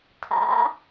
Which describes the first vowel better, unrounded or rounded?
unrounded